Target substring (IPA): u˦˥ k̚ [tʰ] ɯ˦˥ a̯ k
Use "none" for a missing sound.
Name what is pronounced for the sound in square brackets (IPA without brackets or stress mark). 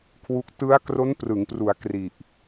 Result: t